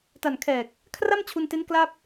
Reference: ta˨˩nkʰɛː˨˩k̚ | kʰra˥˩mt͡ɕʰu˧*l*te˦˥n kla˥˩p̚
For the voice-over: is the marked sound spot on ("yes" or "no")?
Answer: no